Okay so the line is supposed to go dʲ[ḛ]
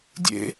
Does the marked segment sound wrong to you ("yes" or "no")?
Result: no